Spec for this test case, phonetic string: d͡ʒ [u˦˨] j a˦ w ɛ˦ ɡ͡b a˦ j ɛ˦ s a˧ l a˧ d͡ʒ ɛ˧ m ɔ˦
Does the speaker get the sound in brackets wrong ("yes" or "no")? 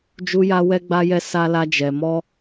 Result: yes